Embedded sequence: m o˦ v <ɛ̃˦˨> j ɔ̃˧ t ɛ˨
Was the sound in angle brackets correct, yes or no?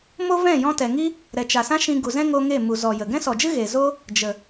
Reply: yes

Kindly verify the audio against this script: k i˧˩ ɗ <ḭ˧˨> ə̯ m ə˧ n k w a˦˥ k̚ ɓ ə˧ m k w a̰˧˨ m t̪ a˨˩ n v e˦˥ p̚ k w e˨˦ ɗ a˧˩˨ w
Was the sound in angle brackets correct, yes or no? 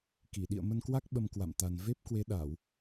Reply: yes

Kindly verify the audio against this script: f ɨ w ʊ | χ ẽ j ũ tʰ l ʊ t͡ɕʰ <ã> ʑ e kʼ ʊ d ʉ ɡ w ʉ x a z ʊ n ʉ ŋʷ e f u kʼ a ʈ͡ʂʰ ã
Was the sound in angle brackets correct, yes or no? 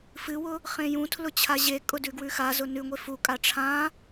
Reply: no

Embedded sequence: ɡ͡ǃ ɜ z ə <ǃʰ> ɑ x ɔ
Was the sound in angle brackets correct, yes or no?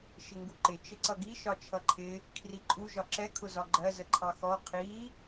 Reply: yes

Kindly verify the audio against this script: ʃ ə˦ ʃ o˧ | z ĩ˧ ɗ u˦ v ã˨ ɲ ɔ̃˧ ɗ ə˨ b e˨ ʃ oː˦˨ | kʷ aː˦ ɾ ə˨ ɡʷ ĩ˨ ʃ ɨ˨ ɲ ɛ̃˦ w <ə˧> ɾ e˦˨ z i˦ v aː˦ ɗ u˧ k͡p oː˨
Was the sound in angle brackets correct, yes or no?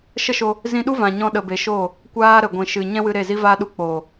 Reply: no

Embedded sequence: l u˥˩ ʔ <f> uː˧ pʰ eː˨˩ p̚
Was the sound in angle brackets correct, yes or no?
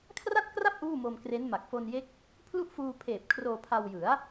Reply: yes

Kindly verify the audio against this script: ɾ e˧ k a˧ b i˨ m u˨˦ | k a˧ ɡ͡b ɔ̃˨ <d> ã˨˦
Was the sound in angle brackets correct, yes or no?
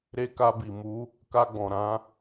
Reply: no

